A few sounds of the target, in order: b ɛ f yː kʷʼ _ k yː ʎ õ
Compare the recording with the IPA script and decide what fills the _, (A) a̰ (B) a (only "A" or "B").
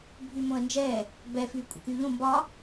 A